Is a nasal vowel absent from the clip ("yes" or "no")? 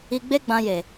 no